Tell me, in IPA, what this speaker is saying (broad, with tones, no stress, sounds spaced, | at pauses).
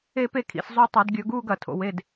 e˥˧ p e˥˧ kʰ ḭ˧˩˧ s zˤ u˧ tˤ ɐ˧˩˧ d ɡʲ ɵ˧˩˧ ɡ uː˥˧ ɡ ɐ˩˧ tʰ o̰˩˧ w e˩˧˩ d